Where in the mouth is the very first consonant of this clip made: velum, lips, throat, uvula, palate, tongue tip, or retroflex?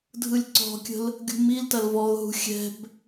tongue tip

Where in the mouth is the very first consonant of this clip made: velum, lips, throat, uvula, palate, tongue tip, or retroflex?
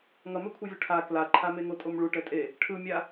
velum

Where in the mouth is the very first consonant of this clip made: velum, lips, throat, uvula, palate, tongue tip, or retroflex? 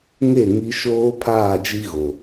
velum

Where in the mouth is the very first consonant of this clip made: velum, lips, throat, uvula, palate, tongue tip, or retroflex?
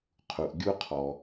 uvula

